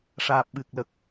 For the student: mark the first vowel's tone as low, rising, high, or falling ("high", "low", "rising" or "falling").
low